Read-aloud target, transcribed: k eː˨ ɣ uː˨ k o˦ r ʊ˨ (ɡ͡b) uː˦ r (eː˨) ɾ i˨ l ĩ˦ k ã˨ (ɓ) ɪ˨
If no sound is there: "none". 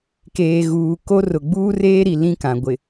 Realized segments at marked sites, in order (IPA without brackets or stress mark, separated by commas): ɡ͡b, eː˦, ɡʷ